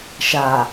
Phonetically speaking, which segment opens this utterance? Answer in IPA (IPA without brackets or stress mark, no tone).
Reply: ʃ